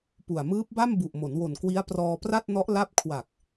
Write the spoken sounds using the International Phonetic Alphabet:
pu˨˩a̯mɯː˦˥p̚ba˥˩m bu˨˩ʔmo˩˦nwo˨˩n kwi˦˥a̯ prɔː˧pra˥˩t̚nɔ˦˥ʔ la˦˥p̚kʰwa˨˩k̚

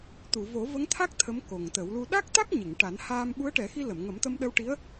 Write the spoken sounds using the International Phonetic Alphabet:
t̪u˨˩˨vo˨˩˦və˧˥ŋt̪ʰa˦˥k̚ t̪ʰə˧˥m ko˨˩ŋt̪ə˨˩˦wlu˧ ɗa˦˥k̚t̪a˦˥k̚ ɲə˨˩˨ŋʈa˨˩˦nhaː˧m ɓu˧˥ə̯ʈɛ˨˩˦xi˧lə˨˩˨m ŋə˨˩˦mt̪ə˧mɗə˧wʈi˧˥ə̯

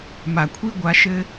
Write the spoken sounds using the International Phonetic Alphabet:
ma˨kʷʰi˦ ɡʷa˧ʃɘ˦

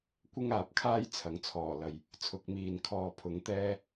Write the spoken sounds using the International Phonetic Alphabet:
kʷɪ˥ŋaː˨p̚kʰaː˥j t͡sʰɐ˨˥ŋt͡sʰɔː˨˩lɐ˨j | t͡sʰʊ˨k̚miː˨nkʰɔː˨pʰʊ˨˧ŋ t̪ɛː˥

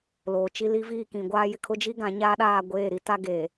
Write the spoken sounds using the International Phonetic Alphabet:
loː˨t͡ʃi˦ li˦viː˦˨kĩ˨ɡʷaː˦ jɪ˨kʰʊ˦d͡ʒi˦ ɡã˨˦ ɲaː˦ɗaː˦˨ ɡʷeː˦˨ɾi˦ ta˦ɡeː˨

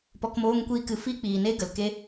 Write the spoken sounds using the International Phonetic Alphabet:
pɔ˧kmoː˦ŋkʷiː˦kɨ˧ fi˦k͡piː˨ne˦ ɡə˨l ke˦

